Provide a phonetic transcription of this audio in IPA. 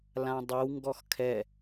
l ã dˤ ɘ w ŋ ɡ ɔ x kʰ ɛ

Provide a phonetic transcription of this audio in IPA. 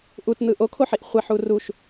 ʔ u t n̪ ɯ ʔ o kʰ o ħ i ʔ χʷ e ħ u r u ʃ

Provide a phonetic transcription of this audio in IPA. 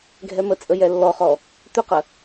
ɡʱ ɛ m ə t͡sʼ ə j ɛ lː ɔ χ ɔ | t̪ ʏ q ə

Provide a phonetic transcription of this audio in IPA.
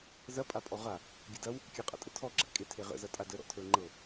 z ɐ pʼ a pʼ ɔ ʁ a | ɡʲ ə d ɐ w | kʲ ɐ qʼ a̰ tʼ ə tʰ ɔ ɡ͡ǁ a̰ kʼ e tʰ e ʁ ə̰ z ɐ tʼ a d ə ɾ ɔ̰ tʰ ə˞ ŋ͡ǃ ɤ

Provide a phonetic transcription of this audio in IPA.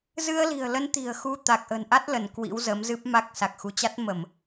z ɨ˧ ə̯ l i̤˨˩ ə̯ l ə˨˦ n t̪ i̤˨˩ ə̯ x u˧ t̪ a˨˩ k̚ ʔ ə̤˨˩ n ʔ a˦˥ t̚ l ə˧˩ n k w ḭ˧˥ w z ə˨˦ m z ɨ˦˥ p̚ m a˦˥ k̚ s a˨˩ k̚ x u˧ t͡ɕ a˦˥ t̚ m ə˧˩˨ m

